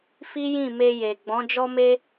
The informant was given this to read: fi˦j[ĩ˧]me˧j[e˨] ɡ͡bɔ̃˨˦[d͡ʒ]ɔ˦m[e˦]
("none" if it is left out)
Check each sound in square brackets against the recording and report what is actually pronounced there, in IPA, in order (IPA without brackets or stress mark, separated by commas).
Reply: ĩ˦˨, e˨, d͡ʒ, e˦